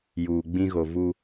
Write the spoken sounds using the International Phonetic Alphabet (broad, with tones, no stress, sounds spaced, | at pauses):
j uː˨ ɡ͡b ĩ˦ ɣ o˨ v u˦